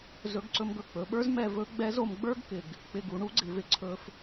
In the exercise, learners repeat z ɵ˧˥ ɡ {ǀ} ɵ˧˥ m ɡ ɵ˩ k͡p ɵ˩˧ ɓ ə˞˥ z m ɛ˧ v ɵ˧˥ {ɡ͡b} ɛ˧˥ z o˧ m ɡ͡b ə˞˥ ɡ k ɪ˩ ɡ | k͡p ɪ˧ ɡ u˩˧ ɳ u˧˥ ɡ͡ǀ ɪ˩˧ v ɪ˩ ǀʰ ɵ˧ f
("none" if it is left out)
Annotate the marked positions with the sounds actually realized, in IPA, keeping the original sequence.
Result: ǀ, ɡ͡b

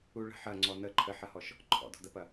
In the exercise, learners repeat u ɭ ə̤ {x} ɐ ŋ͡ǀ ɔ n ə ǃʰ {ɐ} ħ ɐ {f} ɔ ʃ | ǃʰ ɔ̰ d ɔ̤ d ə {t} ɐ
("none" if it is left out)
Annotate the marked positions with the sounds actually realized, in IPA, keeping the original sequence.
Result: ħ, ə, h, p

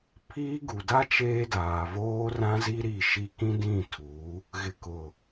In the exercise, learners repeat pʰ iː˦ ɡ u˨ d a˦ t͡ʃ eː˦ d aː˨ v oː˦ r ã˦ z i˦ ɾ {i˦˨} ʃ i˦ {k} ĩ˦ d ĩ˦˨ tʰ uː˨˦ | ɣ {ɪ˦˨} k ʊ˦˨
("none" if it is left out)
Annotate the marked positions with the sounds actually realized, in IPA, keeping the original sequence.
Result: i˦˨, k, ɪ˦˨

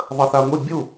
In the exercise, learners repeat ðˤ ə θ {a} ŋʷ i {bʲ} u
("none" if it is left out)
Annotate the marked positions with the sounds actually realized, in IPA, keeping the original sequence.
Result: a, bʲ

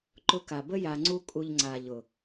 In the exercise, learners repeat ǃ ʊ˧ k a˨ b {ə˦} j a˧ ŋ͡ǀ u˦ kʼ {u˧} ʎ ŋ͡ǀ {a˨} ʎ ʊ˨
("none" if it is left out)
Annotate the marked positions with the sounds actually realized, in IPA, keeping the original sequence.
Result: ə˦, u˧, a˨

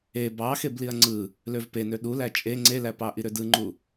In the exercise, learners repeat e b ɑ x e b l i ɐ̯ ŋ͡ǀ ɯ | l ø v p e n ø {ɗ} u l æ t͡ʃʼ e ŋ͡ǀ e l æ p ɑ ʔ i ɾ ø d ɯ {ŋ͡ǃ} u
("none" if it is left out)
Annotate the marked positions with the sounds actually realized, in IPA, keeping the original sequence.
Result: ɗ, ŋ͡ǃ

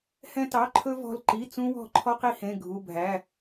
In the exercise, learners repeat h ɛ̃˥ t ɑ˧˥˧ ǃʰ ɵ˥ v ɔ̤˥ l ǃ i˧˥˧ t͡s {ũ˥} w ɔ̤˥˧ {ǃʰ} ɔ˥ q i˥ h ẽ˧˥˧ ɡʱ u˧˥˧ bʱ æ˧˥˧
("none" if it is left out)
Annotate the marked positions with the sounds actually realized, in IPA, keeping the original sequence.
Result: ũ˥, ǃʰ

